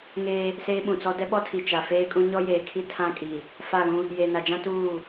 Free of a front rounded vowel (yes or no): yes